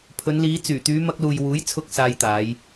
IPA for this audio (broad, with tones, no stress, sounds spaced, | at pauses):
pʰ ɵ˨˧ n l iː˨˧ t͡s yː˨˩ t̪ yː˨˧ m ɐ˧ k̚ l uː˨ j w uː˨˥ j t͡sʰ ʊ˧ k̚ s aː˧ j t̪ aː˨˧ j